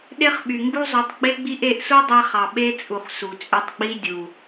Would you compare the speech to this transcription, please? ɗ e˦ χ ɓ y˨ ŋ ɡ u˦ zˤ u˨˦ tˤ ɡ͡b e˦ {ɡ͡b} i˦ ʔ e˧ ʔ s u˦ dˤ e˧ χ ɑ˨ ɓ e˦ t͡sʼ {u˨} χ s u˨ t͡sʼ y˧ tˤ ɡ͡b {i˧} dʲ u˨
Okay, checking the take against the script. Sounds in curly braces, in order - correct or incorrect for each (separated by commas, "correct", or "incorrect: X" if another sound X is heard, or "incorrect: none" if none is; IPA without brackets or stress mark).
correct, correct, incorrect: i˦